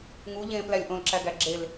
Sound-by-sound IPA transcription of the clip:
ŋ u ʎ ẽː p l æ lʲ ʔ õ l ǁ æ ɡ æ ɡ͡ǁ e l

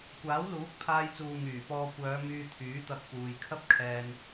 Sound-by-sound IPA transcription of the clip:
kʷ aː˨˥ w l uː˨˥ k̚ pʰ aː˧ j t͡s uː˨ ŋ yː˨˩ p ɔː˧ kʷ œː˨˧ m yː˧ t̪ʰ yː˨˥ t̪ ɐ˧ k̚ p uː˨ j kʰ ɐ˥ p̚ kʰ ɛː˧ n

